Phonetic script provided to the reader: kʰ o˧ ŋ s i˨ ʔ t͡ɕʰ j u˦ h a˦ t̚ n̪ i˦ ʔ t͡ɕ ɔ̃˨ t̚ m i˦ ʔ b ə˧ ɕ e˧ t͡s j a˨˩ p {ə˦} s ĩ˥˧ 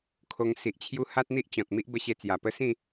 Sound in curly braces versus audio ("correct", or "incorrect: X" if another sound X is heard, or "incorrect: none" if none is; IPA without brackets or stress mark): correct